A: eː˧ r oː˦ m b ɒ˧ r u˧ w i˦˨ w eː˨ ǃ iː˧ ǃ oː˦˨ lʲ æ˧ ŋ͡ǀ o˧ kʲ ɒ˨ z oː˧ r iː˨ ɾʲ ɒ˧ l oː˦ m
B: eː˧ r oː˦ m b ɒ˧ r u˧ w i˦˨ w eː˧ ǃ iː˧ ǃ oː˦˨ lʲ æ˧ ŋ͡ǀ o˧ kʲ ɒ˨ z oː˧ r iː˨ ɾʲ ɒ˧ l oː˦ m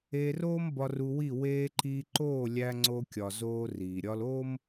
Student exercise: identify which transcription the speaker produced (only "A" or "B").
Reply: B